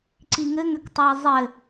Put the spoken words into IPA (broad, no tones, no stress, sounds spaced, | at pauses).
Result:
ǀ i ŋ ɘ ŋ ʏ k tˤ o e̯ zˤ ɘ